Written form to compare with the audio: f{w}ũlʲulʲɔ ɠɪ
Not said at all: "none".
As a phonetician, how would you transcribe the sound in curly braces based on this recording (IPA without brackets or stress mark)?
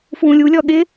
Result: w